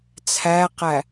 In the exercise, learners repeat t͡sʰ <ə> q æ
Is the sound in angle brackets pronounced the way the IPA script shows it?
no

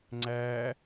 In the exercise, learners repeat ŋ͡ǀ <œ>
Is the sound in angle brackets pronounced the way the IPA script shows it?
no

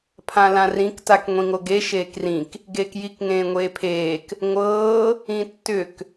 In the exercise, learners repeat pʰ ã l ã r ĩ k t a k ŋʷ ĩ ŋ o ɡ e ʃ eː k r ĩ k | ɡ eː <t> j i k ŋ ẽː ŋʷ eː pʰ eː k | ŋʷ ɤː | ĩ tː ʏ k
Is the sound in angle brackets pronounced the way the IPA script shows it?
no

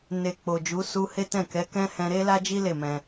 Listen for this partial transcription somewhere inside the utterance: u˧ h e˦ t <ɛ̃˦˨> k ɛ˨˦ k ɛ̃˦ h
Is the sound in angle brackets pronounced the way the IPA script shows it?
yes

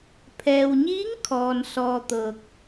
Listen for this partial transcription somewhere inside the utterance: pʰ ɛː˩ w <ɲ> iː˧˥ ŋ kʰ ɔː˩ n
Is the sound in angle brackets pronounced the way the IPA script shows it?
yes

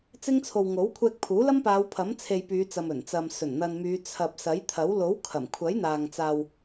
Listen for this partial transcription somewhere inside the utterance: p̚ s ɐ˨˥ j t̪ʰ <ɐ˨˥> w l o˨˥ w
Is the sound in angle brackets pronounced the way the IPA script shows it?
yes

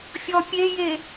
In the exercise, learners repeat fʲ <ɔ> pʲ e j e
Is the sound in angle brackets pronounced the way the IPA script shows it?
yes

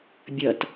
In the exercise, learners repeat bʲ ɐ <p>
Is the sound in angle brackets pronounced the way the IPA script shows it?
no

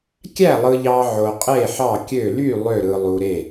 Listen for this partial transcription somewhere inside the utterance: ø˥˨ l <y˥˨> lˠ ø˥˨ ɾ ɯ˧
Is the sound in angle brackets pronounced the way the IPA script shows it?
yes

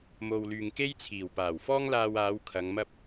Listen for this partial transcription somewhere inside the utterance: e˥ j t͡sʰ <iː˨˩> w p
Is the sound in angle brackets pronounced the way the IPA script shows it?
yes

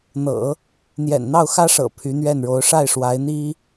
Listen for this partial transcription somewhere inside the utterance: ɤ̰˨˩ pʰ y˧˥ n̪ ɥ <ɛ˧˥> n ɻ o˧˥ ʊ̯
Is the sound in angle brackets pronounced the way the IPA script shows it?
no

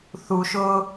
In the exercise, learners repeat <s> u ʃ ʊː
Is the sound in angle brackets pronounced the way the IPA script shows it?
no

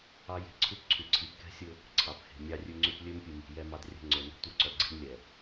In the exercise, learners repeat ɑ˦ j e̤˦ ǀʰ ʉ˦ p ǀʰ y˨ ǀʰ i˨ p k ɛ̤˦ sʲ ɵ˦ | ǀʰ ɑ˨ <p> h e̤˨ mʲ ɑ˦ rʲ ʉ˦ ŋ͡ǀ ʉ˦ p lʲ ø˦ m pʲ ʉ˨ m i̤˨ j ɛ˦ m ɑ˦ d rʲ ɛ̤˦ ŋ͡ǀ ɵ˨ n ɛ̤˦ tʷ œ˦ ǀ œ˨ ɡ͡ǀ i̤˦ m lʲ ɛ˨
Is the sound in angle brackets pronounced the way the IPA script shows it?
yes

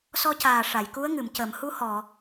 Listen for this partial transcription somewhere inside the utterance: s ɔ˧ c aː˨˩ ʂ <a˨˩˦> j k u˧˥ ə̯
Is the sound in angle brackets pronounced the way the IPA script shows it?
no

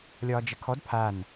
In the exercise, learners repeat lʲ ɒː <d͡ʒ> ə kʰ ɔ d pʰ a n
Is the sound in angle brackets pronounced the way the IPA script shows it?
yes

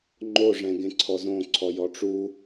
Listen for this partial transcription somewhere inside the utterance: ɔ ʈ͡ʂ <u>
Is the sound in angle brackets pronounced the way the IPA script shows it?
yes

